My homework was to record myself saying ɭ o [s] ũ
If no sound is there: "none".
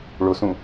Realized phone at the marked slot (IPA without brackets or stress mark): s